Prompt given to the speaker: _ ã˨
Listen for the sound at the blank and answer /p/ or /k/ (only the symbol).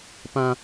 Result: p